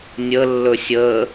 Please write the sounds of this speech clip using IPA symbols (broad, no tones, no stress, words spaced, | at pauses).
nʲə lːɵsʲə